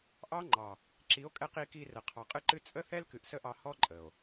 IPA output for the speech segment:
ʔɑ˦ ŋ͡ǃɑ˨ | ǁi˨˦o̯kʼɛ˧q i˧ki˧rə˨ qʰɑ˨qʼɨ˧ǃɨ˧ t͡sʼə˦θɛ˦lkɨ˨ʔ sə˦ʔɑ˧hɔ˦ ǃʼə˨o̯

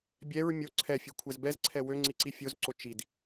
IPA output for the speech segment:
bʲɛɹ mʲo ǀʰɛfʲøkʷʰɛz bɛzǀʰɛ wøŋ͡ǀiǀi fʲozǀo t͡ʃid

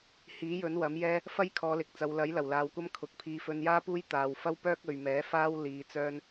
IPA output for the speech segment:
hiː˨˥ jɵ˨˥nwɐ˨˥mjɛː˥ | fɐ˥jkʰɔː˨˧lɪ˨k̚t͡sɐ˨˧w lɐ˨˥jlɐ˨˩wlaː˨wkʷɐ˥m kʰʊ˨˥k̚ pʰiː˨˧fɵ˧njaː˥puː˥j t̪aː˧w fɐ˥w pœː˥k̚ɵ˨ɥmɛː˨˥faː˥w liː˧t͡sœː˥n

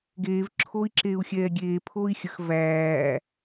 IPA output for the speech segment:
ɡeːv ǁʰoːi̯ǁeːu̯xʲɛːɡʲeː pʰoːi̯xʲəx væː

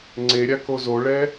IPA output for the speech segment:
ŋ͡ǀeɾʲa kozoɭɛ

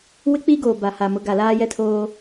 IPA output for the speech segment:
wɪ˦k͡pi˦ɡoː˨ ba˨ha˨mʊ˨˦ ɡa˨ laː˦jɛ˦tʰoː˦

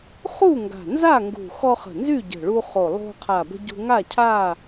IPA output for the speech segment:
χu˥˨ŋɡa̤˨˩nza˥˨ŋɡṳ˨˩ xɔ˧χə̤˨˩ nzy˥˨ɟə̤˨˩ɭu˧χo˨˩ lˠo̤˧qʰa˨˩bə̤˧ ɟṳ˧ŋa˥˨ cʰa˥˨

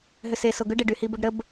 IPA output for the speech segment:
ɦʏseso ɡʏɖeɖyhi bʊɖɾəb

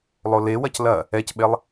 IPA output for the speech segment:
lˠolewɐc lɐ | ɛcɓelˠ

